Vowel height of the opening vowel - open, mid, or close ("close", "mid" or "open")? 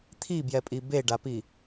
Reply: close